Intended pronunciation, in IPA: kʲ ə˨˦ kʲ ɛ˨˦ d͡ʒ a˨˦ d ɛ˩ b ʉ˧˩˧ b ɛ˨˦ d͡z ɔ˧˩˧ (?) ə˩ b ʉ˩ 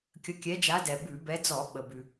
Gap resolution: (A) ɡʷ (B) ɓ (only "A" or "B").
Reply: B